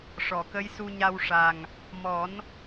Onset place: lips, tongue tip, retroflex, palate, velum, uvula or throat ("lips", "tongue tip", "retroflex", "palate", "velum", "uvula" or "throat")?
retroflex